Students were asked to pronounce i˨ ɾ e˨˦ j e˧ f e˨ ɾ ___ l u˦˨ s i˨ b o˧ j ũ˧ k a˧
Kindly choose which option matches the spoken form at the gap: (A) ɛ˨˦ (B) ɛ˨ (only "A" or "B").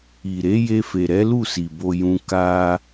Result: A